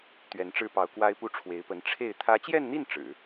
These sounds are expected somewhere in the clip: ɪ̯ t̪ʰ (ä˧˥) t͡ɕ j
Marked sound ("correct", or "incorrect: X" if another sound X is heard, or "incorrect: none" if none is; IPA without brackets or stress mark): correct